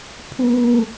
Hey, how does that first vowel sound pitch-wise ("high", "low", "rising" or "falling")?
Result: high